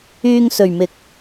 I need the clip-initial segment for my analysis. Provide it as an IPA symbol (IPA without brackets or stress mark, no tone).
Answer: yː